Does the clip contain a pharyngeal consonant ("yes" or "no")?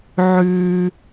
yes